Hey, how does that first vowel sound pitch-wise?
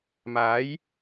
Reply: rising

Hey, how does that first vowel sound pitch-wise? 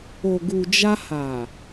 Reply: low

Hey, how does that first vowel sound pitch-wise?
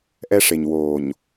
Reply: high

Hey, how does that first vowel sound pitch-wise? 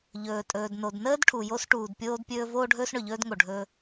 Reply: low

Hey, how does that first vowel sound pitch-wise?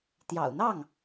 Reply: low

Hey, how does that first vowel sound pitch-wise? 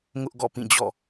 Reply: high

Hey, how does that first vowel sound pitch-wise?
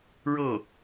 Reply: falling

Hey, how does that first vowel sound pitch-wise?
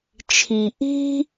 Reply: low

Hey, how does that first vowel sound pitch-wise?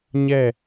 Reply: falling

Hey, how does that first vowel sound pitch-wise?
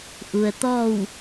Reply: low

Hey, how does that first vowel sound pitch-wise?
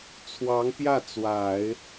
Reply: rising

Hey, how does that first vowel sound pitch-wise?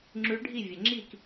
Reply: rising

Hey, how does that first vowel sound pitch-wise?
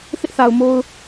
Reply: high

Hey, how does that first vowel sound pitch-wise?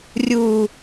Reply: low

